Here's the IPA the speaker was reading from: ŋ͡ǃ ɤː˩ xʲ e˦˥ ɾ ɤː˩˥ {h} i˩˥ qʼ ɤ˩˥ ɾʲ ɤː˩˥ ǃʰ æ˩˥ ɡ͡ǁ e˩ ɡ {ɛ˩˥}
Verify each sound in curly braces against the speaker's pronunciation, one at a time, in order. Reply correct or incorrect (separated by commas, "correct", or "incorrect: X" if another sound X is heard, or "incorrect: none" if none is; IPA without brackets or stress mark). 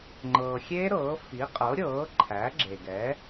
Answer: incorrect: f, correct